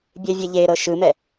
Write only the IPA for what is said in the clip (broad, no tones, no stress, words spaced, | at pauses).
bʲevʲeʎeɾɤ ʃɯmɛ